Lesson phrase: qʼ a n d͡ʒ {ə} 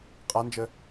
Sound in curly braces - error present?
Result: no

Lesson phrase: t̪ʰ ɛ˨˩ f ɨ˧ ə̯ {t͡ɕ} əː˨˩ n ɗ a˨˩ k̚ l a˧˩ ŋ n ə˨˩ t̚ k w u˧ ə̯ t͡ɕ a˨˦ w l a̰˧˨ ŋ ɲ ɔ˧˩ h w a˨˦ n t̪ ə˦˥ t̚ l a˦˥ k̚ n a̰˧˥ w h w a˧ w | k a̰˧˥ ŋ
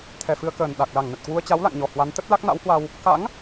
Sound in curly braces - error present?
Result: yes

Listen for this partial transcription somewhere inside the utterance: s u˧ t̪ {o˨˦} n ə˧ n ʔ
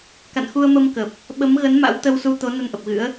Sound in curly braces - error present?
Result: no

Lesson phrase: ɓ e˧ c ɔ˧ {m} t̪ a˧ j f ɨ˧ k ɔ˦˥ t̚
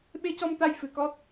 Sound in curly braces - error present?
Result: no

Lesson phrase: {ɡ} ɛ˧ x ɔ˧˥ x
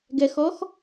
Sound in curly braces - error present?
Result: no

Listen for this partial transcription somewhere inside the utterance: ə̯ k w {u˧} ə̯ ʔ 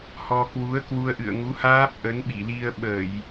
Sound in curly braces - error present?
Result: no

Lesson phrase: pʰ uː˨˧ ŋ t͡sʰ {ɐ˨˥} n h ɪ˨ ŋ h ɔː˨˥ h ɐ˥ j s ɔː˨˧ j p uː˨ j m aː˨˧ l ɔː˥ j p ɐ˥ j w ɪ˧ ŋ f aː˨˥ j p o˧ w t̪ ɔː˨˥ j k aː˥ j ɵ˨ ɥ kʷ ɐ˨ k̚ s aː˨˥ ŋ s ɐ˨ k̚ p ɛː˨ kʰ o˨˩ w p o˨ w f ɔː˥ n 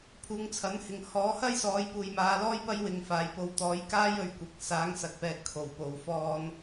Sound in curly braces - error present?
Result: no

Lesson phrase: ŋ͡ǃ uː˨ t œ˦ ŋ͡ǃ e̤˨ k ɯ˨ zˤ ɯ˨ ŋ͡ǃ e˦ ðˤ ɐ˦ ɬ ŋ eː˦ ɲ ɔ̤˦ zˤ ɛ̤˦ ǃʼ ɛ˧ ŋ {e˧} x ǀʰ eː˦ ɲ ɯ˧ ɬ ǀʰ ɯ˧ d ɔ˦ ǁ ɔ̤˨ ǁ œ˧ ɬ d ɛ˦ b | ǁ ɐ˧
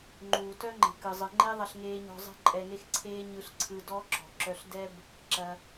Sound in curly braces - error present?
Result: yes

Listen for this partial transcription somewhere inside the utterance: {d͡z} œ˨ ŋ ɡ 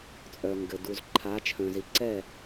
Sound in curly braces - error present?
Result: yes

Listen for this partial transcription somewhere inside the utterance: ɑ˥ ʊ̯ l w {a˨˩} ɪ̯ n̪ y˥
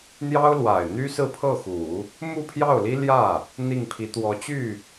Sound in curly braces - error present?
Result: no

